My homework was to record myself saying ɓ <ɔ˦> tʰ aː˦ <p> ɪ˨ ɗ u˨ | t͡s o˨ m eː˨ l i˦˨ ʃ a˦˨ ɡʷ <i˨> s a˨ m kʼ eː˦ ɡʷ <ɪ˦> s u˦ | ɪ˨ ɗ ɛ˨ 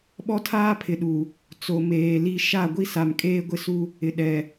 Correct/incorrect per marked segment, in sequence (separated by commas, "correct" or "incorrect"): correct, incorrect, incorrect, correct